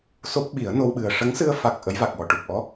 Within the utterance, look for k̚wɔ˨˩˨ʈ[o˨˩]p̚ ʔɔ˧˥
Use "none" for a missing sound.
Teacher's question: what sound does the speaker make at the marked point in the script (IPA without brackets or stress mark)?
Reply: u˨˩